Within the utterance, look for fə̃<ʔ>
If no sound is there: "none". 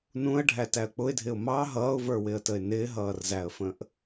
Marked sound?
ʔ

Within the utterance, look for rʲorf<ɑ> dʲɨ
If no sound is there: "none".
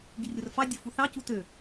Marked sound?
ɑ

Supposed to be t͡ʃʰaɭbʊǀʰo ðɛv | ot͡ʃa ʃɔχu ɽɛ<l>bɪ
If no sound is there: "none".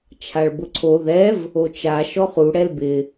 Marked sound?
l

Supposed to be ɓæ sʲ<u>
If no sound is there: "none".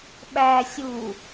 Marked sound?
u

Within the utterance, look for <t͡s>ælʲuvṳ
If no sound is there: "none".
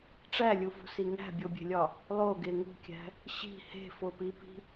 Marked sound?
ʈ͡ʂ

